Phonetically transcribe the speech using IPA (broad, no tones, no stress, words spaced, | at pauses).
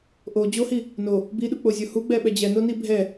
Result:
ʔo d͡ʑohi | no | biɗuk͡pozʲo huɡ͡bɛ ɓɛd͡ʑɛnoni bʱɛ